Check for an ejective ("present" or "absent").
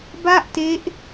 absent